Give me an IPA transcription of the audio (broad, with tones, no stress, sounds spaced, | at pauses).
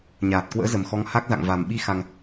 ɲ aː˨˩ t̚ k w ə̰ː˧˥ z ə˨˩ m x ɔ˨˦ ŋ h a˦˥ k̚ z a̰˧˨ ŋ v a˨˩ m ɓ i˧ x a˧ ŋ